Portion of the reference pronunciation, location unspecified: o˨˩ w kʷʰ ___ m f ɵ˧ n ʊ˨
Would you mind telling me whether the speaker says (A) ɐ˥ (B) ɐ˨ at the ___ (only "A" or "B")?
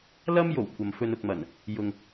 B